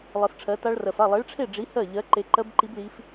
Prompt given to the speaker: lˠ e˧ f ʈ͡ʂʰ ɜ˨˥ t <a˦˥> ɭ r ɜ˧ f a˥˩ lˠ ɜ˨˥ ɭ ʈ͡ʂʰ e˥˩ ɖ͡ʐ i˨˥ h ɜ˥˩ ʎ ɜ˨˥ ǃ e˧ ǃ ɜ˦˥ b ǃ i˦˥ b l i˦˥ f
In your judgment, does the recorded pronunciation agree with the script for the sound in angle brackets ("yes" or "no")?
yes